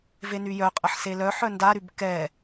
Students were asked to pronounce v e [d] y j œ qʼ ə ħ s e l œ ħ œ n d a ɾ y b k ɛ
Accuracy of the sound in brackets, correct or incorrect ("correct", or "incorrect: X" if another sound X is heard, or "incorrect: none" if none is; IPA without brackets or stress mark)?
incorrect: n